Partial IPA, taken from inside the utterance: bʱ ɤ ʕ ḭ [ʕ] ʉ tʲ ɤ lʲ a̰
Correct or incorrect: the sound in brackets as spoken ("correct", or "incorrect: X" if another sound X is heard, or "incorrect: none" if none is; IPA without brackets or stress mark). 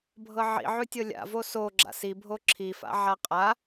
correct